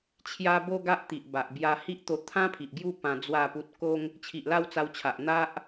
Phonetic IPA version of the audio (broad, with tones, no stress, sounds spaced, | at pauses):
t͡ɕʰ j a˧ b o˦ ɡ a˦ ʔ t̪ i˨ ʔ b a˨ ʔ b j a˧ h i˦ ʔ t̪ o˧ t̪ʰ ã˦ pʰ i˨ ʔ ɡ j u˥˧ p ã˧ d͡z w a˥˧ p u˦ t̚ k o˦ ŋ | t͡ɕʰ i˨ ʔ l a˥˧ w t͡s a˧ w t͡ɕʰ a˨ ʔ n̪ a˦ ʔ